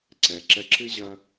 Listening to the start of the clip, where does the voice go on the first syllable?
low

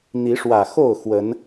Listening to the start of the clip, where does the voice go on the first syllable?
rising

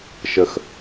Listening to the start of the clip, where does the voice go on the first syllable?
high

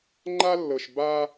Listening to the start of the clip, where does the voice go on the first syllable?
high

